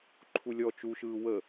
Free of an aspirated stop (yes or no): no